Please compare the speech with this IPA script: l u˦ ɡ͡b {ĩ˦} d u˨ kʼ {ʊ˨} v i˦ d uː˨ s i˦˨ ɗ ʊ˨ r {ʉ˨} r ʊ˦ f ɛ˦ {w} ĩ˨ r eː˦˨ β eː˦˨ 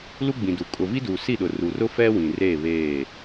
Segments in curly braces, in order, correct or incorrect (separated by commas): incorrect, correct, incorrect, correct